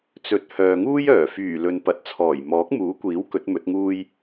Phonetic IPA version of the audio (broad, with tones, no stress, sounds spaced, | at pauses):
t͡s ɵ˨˥ t̚ h œː˨ ŋ uː˥ j œː˨˩ f yː˨˩ l ɵ˨ n p ɐ˨˥ t̚ t͡sʰ ɔː˨˩ j m ɔː˨˥ k̚ m uː˨˥ kʷ iː˨˥ w k ɵ˨˥ t̚ m ɵ˨˥ t̚ ŋ uː˥ j